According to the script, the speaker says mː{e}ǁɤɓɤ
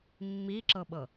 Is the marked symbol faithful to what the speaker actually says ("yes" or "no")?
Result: no